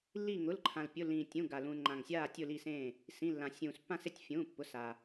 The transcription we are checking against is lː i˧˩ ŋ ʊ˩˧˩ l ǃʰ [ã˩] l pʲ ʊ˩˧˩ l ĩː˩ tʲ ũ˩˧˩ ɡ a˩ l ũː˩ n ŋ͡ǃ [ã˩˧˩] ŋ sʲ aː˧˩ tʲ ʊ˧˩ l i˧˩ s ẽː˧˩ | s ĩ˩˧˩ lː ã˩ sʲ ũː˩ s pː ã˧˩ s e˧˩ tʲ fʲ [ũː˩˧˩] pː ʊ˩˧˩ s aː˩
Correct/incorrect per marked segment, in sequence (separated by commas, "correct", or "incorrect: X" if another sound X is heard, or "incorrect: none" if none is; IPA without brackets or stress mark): correct, incorrect: ã˩, correct